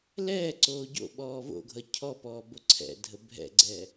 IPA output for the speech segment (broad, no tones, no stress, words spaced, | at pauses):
lɛːǀoː ɟo̰ɓɔː vo̰ɡʱʌ cʰɔpɔː boǀʰɛ̰dʱə bʱɛ̰ɡ͡ǀɛː